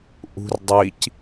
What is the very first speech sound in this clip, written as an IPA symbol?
ʔ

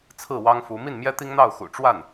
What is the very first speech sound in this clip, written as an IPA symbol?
t͡sʰ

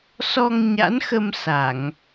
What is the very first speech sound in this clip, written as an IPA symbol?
s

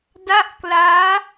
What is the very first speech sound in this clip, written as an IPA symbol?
d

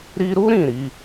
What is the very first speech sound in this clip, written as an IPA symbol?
ɾ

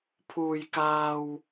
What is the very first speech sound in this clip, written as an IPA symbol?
pʰ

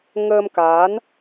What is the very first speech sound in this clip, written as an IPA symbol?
ŋ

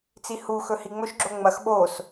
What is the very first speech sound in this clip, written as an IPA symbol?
t͡s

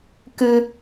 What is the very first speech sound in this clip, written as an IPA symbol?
k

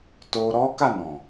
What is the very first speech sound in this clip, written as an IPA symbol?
t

